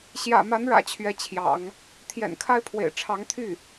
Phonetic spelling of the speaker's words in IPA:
ɕ j ä̰˨˩ m a˧˥ n ɻ ä̰˨˩ t͡ɕʰ ɥ ɛ˧˥ t͡ɕʰ j ɑ̰˨˩˦ ŋ | t̪ʰ j ɛ̰˨˩ n kʰ a˥ ɪ̯ pʰ w ḛ˨˩ ɪ̯ ʈ͡ʂʰ ɑ˧˥ ŋ t̪ʰ y˥˩

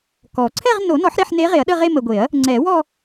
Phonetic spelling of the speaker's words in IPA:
k ɔ˨˩˦ ǀʰ ɛ˥˧ ʁ n o˨˩˦ n ɔ˨˩˦ ħ ɾ e˥˧ ħ n e˧˥ ʁ e˨˩˦ ɐ̯ ɗ ə˥˧ ʁ e˥˧ m ə˨ ɡʷ e˨˩˦ ɐ̯ | ŋ͡ǀ ɛ˨˩˦ w ɔ˥˧

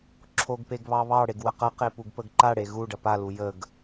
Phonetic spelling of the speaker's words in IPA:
ǁʰ o ɡ p e ɡ β ɑ β ɑ ɽ e ɡ w ə q ɐ q e p u ɡ p ə ɡ ǃ a ɽ e ɣ u ɖ ɐ p a l u j ə ɡ

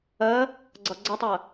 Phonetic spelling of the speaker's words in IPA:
ɜ | ɡ͡ǀ ʌ ɡ͡ǀ ʌ tˤ ɜ

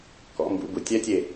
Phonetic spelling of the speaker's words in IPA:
k ɔ̰˨˩˦ m b ṵ˨˩˦ b u˨˩˦ tʲ ɛ˦˥ tʲ e˦˨

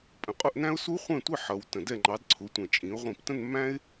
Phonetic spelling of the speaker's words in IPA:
pʼ ə̃˨˦ qʼ ʊ˥˧ ʔ n æ̃˥ ʊ̯ s u˥ χʷ ɛ̃˥˧ tʷ ɪ˥˧ ħ ʌ˨˦ w t ə̃˧˩ d ɛ˥˧ ŋ͡ǃ ɑ˨˦ d ǀʰ ʊ˨˦ tʷ ə̃˧˩ t͡ʃʼ ĩ˨˦ ʊ̯ ʁʷ ĩ˧˩ p t ə̃˥˧ n mː æ̃˥ ɪ̯

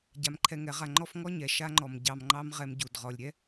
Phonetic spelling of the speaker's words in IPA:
ɟ a˧ m ǃʰ ɛ˧ ŋ ɛ˨˦ ʁ a˧ ŋ͡ǃ ɔ˦ f ŋ ɔ˦ ɲ ɛ˨ ʃ a˧ ŋ͡ǃ ɔ˨ m ɟ ɑ˨ m ŋ͡ǃ ɑ˧ m ʁ ɛ˧ m ɟ u˨ d ʁ ɔ˨ lʲ ɾʲ ɛ˦

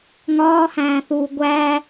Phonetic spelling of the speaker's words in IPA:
ŋ ɒː h æ̃ː θ uː ɡʷ æ

